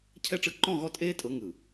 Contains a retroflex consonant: yes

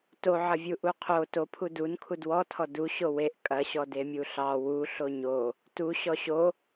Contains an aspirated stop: yes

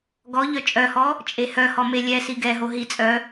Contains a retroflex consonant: no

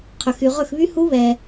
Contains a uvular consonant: yes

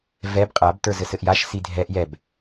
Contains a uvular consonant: yes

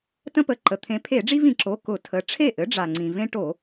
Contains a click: yes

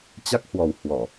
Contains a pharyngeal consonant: no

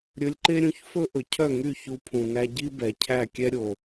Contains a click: yes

